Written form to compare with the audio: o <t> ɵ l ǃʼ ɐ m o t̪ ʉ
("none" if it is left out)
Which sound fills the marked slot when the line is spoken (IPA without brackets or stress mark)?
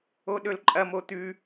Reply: ɗ